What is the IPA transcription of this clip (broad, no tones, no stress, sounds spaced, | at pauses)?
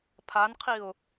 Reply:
pʰ a n qʰ i ʊ̯